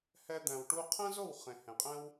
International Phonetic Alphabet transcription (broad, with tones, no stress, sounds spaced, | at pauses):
h ɛ˧ d̪ æ̃˨ w ʈ u˧ qʰ ɛ̃˦ z o˦˨ w χ ẽ˨ h ẽ˨ qʼ ɛ̃˦ w